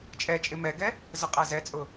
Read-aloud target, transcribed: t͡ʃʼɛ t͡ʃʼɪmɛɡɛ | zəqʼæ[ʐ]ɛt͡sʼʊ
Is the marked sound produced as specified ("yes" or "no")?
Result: no